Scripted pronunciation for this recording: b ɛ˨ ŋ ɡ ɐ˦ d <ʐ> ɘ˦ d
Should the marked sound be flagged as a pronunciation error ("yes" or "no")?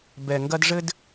no